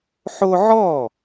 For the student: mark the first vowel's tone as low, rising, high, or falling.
high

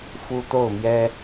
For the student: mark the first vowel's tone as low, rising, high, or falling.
high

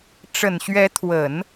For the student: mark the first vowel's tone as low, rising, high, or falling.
low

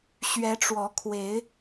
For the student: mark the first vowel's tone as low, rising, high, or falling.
rising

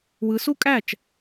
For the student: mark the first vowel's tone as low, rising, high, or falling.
rising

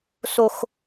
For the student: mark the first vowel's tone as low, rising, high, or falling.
high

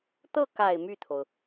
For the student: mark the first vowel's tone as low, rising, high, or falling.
falling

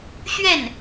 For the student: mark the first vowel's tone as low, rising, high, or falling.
falling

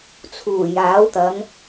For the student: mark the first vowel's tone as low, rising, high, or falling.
low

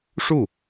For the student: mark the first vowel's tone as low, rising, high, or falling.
falling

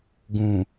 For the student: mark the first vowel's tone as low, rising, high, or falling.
low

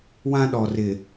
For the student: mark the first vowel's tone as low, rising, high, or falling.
high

